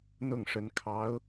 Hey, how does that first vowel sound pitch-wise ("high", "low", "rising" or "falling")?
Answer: falling